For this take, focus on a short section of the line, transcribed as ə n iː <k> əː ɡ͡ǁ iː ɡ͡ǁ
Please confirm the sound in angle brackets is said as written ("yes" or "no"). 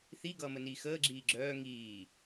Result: no